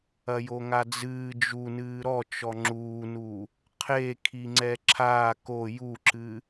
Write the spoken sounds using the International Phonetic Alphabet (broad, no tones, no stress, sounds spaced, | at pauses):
ɐ j o ŋ a d͡z ɨː d͡ʒ u n ɨː ɾ ɔ t͡ʃ ɔ ŋ͡ǁ uː n u | qʰ e kʰ i ŋ͡ǀ ɛ ǁʰ aː k o j u ǁ ɨ